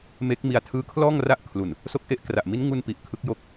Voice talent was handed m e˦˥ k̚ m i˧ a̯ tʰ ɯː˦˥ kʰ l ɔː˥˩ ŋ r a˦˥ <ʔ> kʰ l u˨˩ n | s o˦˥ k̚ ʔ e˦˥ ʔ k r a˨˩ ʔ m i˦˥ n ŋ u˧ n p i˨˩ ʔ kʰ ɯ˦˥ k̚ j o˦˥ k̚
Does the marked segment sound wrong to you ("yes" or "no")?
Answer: no